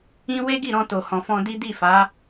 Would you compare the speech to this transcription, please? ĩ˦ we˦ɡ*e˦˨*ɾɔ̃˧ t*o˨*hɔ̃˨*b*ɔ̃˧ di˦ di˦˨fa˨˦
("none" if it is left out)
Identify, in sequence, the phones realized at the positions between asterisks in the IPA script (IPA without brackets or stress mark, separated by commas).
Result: i˦˨, o˨, f